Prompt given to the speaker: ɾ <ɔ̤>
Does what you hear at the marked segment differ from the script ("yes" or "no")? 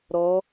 yes